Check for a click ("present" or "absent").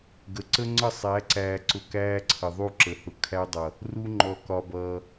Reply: present